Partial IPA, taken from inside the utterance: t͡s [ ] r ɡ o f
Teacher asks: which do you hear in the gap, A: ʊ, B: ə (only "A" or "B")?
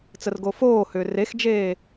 B